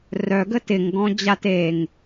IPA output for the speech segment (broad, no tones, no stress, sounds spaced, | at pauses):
r œ ɡ ə t ɪ ŋ ɡ ɔ̃ d͡ʑ a t e ŋ